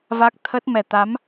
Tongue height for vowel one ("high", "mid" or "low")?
low